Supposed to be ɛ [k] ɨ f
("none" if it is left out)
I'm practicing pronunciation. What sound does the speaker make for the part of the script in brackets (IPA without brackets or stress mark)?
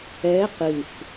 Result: q